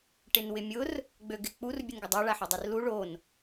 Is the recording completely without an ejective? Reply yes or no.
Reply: yes